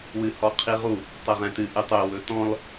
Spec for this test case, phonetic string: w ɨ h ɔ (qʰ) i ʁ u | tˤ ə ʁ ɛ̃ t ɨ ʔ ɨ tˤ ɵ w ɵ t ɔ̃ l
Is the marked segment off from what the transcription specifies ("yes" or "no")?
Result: no